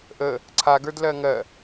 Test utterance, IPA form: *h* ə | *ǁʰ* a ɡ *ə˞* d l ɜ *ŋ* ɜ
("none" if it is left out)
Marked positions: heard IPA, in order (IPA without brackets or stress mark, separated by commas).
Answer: ʔ, ǀʰ, ə˞, ŋ